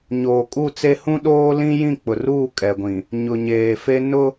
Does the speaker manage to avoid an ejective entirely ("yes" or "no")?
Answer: no